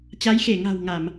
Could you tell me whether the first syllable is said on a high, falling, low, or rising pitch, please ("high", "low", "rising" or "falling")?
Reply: rising